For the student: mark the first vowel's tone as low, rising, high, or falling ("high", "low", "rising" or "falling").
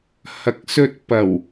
rising